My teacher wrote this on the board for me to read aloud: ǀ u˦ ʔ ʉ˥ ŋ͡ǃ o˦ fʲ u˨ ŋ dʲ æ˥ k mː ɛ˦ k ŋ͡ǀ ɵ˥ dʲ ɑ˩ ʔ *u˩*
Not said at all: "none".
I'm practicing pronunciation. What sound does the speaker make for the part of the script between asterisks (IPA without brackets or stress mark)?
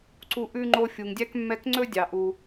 u˩